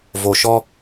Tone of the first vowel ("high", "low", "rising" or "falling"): low